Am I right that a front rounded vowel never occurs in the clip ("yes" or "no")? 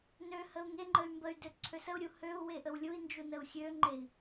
no